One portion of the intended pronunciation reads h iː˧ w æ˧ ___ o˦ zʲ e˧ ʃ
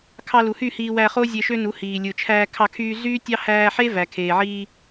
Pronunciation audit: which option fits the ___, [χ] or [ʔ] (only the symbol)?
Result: χ